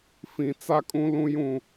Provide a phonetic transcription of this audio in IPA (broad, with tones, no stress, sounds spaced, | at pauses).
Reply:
f ĩ˨ t͡s a˦ kʼ ũ˦ l ũ˦ j ũ˦˨